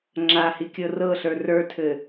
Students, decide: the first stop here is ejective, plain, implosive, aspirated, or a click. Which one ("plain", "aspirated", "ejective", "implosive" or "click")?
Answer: click